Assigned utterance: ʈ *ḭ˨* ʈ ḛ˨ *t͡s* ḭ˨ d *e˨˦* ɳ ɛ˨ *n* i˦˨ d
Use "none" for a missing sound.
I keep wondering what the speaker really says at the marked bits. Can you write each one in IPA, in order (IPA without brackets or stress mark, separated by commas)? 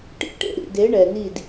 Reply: ḭ˦˨, ɾ, e˨˦, n